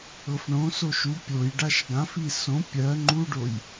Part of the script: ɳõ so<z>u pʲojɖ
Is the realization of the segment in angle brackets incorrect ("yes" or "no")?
yes